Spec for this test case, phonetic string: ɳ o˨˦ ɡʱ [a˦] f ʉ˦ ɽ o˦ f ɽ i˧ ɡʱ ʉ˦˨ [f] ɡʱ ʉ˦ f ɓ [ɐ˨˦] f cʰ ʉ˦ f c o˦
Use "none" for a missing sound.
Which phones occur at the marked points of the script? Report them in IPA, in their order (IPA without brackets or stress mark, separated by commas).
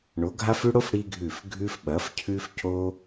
a˦, f, ɐ˨˦